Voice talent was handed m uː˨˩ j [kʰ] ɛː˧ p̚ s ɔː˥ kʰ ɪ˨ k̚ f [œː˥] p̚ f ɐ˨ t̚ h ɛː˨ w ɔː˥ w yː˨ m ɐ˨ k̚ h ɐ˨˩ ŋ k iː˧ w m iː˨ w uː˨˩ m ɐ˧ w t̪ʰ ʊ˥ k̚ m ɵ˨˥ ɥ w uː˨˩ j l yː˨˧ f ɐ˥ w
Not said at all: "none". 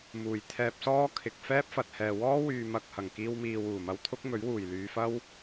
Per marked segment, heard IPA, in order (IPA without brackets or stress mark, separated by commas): t̪ʰ, ɛː˥